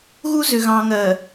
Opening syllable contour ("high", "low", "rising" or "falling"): high